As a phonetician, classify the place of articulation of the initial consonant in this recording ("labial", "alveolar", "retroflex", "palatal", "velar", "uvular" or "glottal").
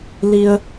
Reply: alveolar